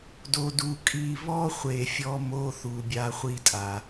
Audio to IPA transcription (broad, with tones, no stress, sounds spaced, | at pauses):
d o˨ d u˨ kʼ i˦˨ β ɔ˦ χʷ e˨ fʲ ɔ˦ m o˦ θ u˨ bʲ a˦ χʷ i˦ tʼ a˨